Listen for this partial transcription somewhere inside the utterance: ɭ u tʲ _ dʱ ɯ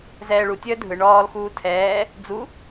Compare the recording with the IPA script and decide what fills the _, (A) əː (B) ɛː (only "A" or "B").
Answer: A